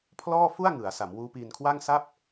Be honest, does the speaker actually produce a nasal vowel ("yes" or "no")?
no